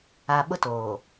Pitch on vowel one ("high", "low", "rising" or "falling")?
low